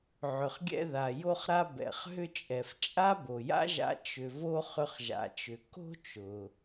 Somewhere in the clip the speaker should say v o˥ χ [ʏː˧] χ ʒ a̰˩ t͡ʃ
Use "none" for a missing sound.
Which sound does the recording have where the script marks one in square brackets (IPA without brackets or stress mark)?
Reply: ʏ˧